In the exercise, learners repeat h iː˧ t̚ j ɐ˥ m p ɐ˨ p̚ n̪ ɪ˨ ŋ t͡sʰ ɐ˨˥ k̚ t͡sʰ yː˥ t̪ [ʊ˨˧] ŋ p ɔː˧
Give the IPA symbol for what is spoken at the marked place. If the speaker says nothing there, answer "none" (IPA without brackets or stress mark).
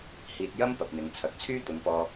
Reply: ʊ˨˧